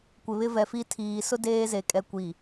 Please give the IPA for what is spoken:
kʷɪ˨βɪ˦vɛ˨fi˦ tʰiː˨sʊ˦ deː˦ ze˨ kʼɛ˨ kʷi˨

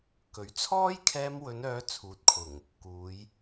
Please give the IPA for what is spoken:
kɵ˨˥ɥ t͡sʰɔː˥jkʰɛː˧m wɵ˨˧nœː˨˧ t͡sʰuː˨t̚kʰʊ˨˩ŋ | kuː˨˧j

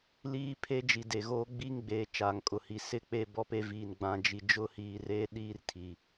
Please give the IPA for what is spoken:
liː˦pʰe˦d͡ʒi˨ de˨ɣoː˦ ɡ͡bi˦ŋɡ͡beː˨˦ t͡ʃaː˨ŋkʼʊ˨hi˨ sɪ˦ k͡pe˦bɔ˦pe˦viː˨n ɡ͡bã˨d͡ʒi˨ d͡ʒʊ˦hiː˨reː˦ ɗiː˦r tʰi˨

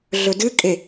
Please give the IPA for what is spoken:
ɮɵdɨkʼe

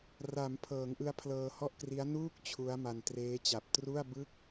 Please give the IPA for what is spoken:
ra˩˦mpʰɤː˩˦ŋʔɯ˧a̯ pʰlɤː˧hɔ˥˩ʔkri˦˥a̯ nuː˥˩k̚ t͡ɕʰu˦˥a̯ma˧n treː˦˥t͡ɕa˨˩p̚ tru˥˩a̯bɯ˥˩k̚

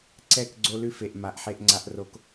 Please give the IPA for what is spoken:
ǀɛ˦˨kɡ͡ǀo˦ lʉ˦fe˨ʔ ma˨ʔħe˦ʔŋ͡ǀa˦ʔro˦k

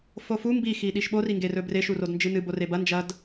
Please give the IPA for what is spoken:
fofu mbi xiɗiʃɓo riŋɡerɵbre ʃurodnd͡ʒɨnɨ borebɐ nd͡ʒɐd

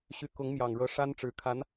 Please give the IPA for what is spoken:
ɕy˧˥kʊ˧˥ŋmjɑ˨˩ŋɻɤ˧˥ ʂa˥nʈ͡ʂɻ̩˧˥kʰa˧˥n

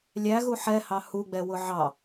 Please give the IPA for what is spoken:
lʲæɣu ħɛhɑ huɡ͡bɛwʊ ʕɑ

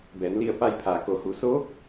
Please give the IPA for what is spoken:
bɛː˩˧nli˧˩ə̯pa˧jpʰaː˩ ko˩˧hu˩˧soː˧˥k̚

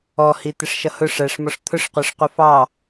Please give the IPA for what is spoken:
ɔhi t̪ɪʂʃʌhʊ ʂæʂmɔʂ t̪ʰʊʂqʷɜʂqʷə fɑ

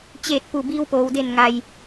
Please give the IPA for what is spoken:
t͡ɕeː˧˩t̚pu˧˩ biː˧wpoː˩wde˧˩n ŋa˩j

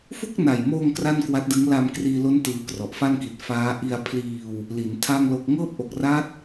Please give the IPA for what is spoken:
fu˥˩k̚na˨˩jmoː˧ŋ kra˥˩nkwa˦˥t̚dɯ˦˥ŋ la˧m kriː˧lo˦˥n tɯː˧krɔ˨˩ʔ fa˥˩nki˨˩t̚ faː˦˥ ʔi˧a̯pʰliː˧w | li˩˦n tʰa˥˩ŋ lo˥˩k̚ ŋɤː˥˩p̚ʔo˨˩k̚ra˦˥t̚

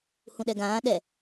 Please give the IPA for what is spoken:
hũɗɛɡãː ɗɛ

